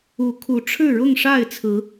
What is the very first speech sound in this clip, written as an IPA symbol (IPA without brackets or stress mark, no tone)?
u